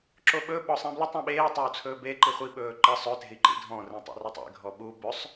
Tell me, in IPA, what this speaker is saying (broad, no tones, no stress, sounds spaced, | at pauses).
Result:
ǁ o ɓ ɵ ɓ ɔ sˤ ĩ b l ə tˤ ɔ̃ ɓ eː tˤ o u̯ t͡sʰ ɵː b e ǃ i χʷ i ɓ ɵː ǃ ə sˤ ɵ t e̤ i̯ ǃ ḭ dʱ ɔ̃ r ĩ tˤ ḛ r ɵ tˤ ḛ ɡʱ ɔ ɓ u b ɵ sˤ